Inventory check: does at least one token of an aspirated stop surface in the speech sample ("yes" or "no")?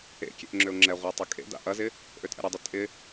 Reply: no